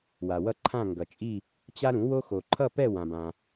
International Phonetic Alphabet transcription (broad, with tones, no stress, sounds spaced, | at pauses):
w a˨ w ʌ˥˧ ǃʰ ã˥˧ ŋ ɡ ʌ˨ t͡ʃʼ i˥˧ | t͡ɕ a˥ ɾ ũ˩˥ w o˥ x o˨ ǃʰ ʌ˥˧ p ɛ˥˧ w ã˨ b ã˨